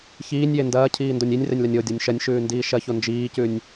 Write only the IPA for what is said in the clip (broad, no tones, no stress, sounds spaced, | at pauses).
ç iː nʲ j e n d ɐː cʰ iː n d o nʲ i nʲ r e nʲ l ɐ nʲ o dʲ ɔ nʲ ʃ ɐ nʲ ʃ ʉː n d iː ʃ ɐ ç o n d͡ʒ iː c ʉ nʲ